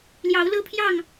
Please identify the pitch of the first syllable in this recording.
rising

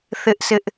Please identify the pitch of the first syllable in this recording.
high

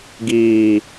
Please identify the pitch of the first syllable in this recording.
low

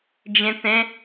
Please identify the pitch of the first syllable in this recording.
low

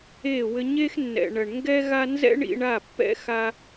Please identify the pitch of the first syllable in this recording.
falling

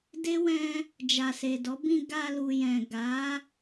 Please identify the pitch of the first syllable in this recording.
high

